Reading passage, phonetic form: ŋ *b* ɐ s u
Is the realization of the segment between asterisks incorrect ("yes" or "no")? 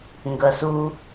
yes